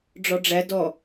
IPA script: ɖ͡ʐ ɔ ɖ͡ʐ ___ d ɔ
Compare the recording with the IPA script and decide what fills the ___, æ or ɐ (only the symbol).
æ